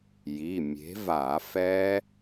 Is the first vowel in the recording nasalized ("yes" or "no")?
no